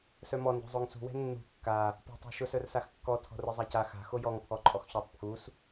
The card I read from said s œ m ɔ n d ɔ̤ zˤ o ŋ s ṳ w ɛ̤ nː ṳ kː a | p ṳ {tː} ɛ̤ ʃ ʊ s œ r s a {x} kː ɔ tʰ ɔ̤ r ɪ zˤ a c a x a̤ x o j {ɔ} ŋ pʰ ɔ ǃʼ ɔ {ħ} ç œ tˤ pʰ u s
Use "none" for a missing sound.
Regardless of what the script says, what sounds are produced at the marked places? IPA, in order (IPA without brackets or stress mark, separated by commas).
tˤ, x, ɔ, x